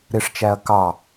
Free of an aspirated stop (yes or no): yes